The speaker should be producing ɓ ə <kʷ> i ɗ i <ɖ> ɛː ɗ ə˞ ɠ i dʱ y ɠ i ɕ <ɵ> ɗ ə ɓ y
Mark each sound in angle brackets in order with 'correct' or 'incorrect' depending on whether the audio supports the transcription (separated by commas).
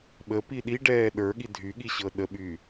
incorrect, correct, incorrect